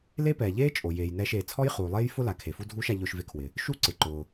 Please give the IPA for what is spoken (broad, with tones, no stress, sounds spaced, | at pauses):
l e˥ p ɛː˩ ʎ eː˥ t͡ʃʼ o˩ j eː˩ j n ɛː˧ ʃ eː˩ t͡sʰ ɔ˥ j χ uː˩ lˠ eː˥ j f ʊ˥ l a˩ kʰ e˩ f u˥ dʱ uː˥ ʃ a˧ ʎ ʊː˧ ʃ v e˧ kʰ w ɪ˩ | ʃ u˥ ǀ ɪ˩ ǃ ʊː˩